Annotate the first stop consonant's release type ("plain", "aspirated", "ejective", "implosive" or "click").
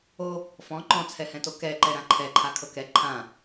click